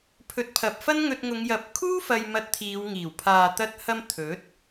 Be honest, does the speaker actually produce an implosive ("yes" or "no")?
no